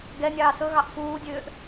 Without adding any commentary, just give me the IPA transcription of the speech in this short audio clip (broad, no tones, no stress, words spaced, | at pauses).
ɡɛnʲɑː sɵɣɑʔ fuːdʲøːʔ